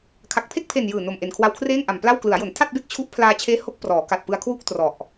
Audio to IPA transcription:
kʰa˨˩k̚pʰe˥˩k̚pʰe˨˩n jɯː˨˩no˨˩mʔe˨˩n kʰwa˧wkʰreː˥˩ŋʔa˨˩m pla˥˩w klɯ˩˦a̯jo˩˦n tʰa˥˩t̚be˥˩k̚ t͡ɕʰu˦˥ʔ pʰlaː˧t͡ɕʰeː˦˥ ho˦˥k̚ prɔː˩˦ka˨˩t̚pɯ˧a̯ kʰwu˥˩k̚ trɔ˨˩ʔ

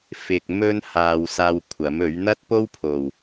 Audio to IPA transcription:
fɪ˨k̚mɵ˧nhaː˨w saː˧wkʷʰɐ˨˥mɵ˨˥ɥ n̪ɐ˥t̚po˥wpʰo˨˩w

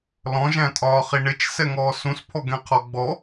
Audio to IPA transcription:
lɔ̃ʒæ̃tʼɒː χiɳɪt͡ʃ sɛŋɔːsũspʰɔ ɡɛ̃qʰɔɡ͡bɔ

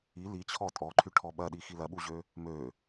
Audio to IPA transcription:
i lit͡ɕʰɔ tʼɔǃʰyʈʰɔ ɓɐɗixi lɐɓuʑø | mø

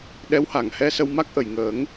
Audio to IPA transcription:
ɗɛ˧˥wha˨˩˨ŋ hɛ˧ sə˧wma˦˥k̚ʔə˨˩˨j ŋəː˨˩˦ŋ

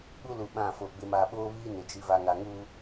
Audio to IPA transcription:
ɓu˦lu˨ ɓã˦˨fo˨ɡ͡bɪ˦ ma˨ɓoː˦βiː˦ nɪ˨d͡ʒi˦ va˨ ŋa˨ŋuː˦

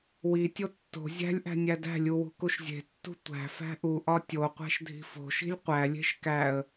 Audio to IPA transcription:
witʲo tːo̤ zʲæ̤lʲʔæ̤ nʲædæ̤lʲu wṳkuʃzʲe̤tːṳ tʷæ̤ fæ̤ʔuʔɒ tʲoqʷæ̤ʃ dʱi̤fo̤ʃi̤lʲ qʷælʲe̤ʃ kæə̯

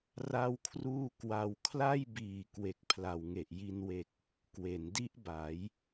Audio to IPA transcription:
ra˥˩wkʰruː˥˩ kwa˧wkʰla˥˩jbiː˨˩ kwe˨˩k̚pʰla˨˩wŋe˨˩ʔji˧n we˨˩k̚ | kwe˩˦ndi˦˥ʔba˩˦j

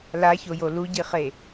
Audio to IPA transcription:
laçojo luɟiχe

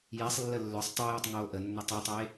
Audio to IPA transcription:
jesˤlːə lːœsˤ tˤojœtˤ ŋoːʔənːʏ tˤʏtˤe

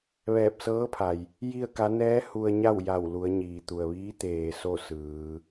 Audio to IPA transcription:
ʋɛː˧˩p̚sɤː˧˥pʰa˩j | ji˥˨ə̯ka˧˥ nɛː˧˥ hu˧ə̯ ɲa˥˨wja˧˩w lu˩˧ə̯ɲiː˩t̪u˩ə̯ʋiː˧˥ t̪eː˩ so˥˨ sɯː˩˧

